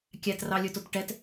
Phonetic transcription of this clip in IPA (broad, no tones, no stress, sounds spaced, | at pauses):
kʲ æ t r ɑ lʲ ɵ t o t ʈ ɛ t